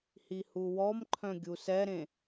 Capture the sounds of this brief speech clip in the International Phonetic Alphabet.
h i h u w ɔ m ǃʰ œ̃ ɡʲ u s ɛ ɾ ẽ

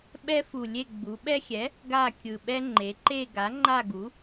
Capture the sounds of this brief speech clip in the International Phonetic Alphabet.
ɓ ɛ˦ f u˨˩ lʲ e˦˨ ɡ͡b u˩˧ ɓ ɛ˦ xʲ ɛ˩˥ | ɡ a˦˨ kʲ ɯ˨˩ ɓ ɛ˦ ŋ͡ǃ e˩˧ ǃ e˦˨ ɡ a˩˥ ŋ͡ǃ a˦˨ ɡ u˩˥

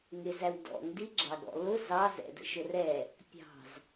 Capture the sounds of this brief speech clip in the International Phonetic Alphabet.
ŋ ɪ z æ w d ɔ̰ ŋ d i ɡ͡ǁ ɑ ɡ ɔ̰ l ʊ z ɑ z ɛ̰ d ə̰ ʃ ʊ r ɛ | pʲ ɑ̤ z

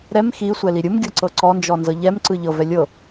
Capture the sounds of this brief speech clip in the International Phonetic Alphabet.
ɾ ɛ m x i sʷ ɛ l i ɾʲ ɯ m ɡʲ ɤ ǀ ɤ ǀ ɔ n d͡ʒ ɔ n z ɤ ʎ ɛ m ǀ ɯ ʎ ɤ v ɛ lʲ ɤ

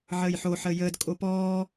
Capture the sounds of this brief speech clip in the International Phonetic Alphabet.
ʕ əː j ħ o ħ əː j əː d kʼ o p ɔː

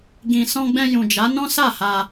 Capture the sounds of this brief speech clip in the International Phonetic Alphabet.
ɡ ĩ˨ s ɔ̃˧ ɡ͡b ɛ̃˧ j ũ˨ d͡ʒ a˨˦ n ɔ̃˦ s a˦˨ h a˧

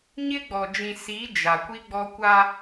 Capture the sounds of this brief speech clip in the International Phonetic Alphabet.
ɲ ɪ˦ ɡ͡b ɔ˨ d͡ʒ ĩ˨ s i˨˦ d͡ʒ a˨ kʷ i˦ ɡ͡b ɔ˦ kʷ a˦

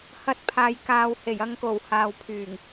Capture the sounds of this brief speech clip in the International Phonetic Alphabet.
h ɐ˧ t̚ pʰ aː˨ j k aː˨ w h e˨˩ j ɐ˧ ŋ k o˨˩ w h aː˨ w pʰ yː˨˩ ŋ

